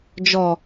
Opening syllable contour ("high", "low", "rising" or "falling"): low